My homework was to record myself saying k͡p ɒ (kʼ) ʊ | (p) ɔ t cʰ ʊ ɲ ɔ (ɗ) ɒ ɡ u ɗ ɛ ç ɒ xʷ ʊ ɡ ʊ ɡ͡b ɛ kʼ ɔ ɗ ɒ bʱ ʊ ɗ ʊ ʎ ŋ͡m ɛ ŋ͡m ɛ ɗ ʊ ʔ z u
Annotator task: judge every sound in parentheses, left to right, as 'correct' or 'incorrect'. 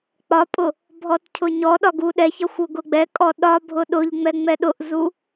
incorrect: pʼ, incorrect: bʱ, correct

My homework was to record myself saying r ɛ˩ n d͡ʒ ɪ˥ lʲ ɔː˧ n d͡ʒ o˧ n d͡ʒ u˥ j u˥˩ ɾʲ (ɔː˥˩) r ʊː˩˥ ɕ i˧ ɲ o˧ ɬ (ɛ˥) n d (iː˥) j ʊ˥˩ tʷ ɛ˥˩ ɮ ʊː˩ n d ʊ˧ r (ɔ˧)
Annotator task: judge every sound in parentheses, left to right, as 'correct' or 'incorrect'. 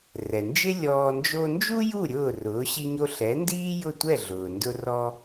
incorrect: ʊː˥˩, incorrect: ɛ˩˥, correct, correct

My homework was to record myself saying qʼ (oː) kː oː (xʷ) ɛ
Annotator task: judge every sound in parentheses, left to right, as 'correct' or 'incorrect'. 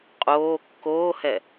correct, incorrect: h

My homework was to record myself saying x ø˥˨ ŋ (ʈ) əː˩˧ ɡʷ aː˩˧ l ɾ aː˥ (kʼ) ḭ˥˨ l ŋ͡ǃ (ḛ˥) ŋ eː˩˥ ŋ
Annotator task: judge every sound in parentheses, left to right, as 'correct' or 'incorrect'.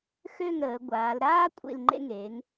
incorrect: ɾ, incorrect: kʷʼ, correct

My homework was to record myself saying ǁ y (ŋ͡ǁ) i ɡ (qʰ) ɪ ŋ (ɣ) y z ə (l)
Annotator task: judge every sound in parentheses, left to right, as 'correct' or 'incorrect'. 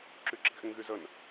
incorrect: ǁ, incorrect: ʔ, correct, incorrect: n

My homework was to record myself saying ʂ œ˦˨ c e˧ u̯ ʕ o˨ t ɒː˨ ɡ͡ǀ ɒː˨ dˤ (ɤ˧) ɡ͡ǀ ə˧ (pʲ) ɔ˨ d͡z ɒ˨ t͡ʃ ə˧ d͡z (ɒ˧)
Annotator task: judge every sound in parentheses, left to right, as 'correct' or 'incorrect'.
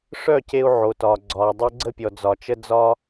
correct, correct, correct

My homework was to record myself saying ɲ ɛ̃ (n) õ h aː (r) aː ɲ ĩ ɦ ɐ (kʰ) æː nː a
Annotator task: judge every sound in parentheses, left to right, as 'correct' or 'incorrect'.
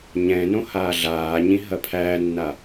correct, incorrect: ɮ, incorrect: pʰ

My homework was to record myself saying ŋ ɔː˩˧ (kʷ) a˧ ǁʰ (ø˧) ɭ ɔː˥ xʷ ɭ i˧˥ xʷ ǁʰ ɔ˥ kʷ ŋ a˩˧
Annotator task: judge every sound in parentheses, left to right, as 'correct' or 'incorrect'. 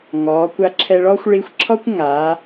correct, incorrect: ɛ˧

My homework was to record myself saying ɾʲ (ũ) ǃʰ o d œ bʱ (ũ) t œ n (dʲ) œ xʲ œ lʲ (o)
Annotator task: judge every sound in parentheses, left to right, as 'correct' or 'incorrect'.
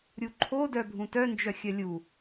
incorrect: u, correct, incorrect: d͡ʒ, incorrect: u

